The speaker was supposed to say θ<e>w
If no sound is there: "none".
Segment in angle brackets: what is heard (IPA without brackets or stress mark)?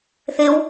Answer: e